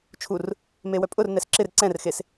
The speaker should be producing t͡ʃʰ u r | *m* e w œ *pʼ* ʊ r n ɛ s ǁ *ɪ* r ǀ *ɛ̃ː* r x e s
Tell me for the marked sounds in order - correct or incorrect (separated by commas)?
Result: correct, correct, correct, incorrect